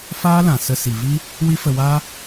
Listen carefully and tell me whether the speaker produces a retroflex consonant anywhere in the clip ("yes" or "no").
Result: no